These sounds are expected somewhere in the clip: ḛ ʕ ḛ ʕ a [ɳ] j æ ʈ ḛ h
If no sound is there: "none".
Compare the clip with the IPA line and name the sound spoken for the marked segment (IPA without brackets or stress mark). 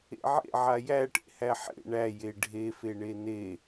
none